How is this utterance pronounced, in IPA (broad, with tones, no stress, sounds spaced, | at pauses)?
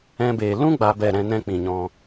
ɛ̃˧ b eː˨ l ũ˦ ɡ͡b aː˧ b ɛ˦˨ ɾ ɛ̃˧ n ɛ̃˦ k͡p ĩ˨ ɲ ɔ̃˧